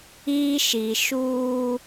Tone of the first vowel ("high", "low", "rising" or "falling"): high